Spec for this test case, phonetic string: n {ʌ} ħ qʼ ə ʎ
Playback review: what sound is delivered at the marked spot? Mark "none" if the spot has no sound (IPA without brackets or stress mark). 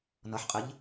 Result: ʌ